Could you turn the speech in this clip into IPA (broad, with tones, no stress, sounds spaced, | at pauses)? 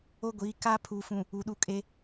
o˦ ɡʷ iː˨˦ k aː˦ pʰ uː˨ f ũ˨ | u˨ ɗ u˦˨ kʼ e˦